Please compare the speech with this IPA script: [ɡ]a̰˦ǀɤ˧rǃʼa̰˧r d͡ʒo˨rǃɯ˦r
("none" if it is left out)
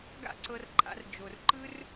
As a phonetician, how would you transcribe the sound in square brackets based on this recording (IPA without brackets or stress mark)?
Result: ɡ